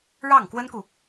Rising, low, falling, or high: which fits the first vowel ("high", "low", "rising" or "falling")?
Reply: falling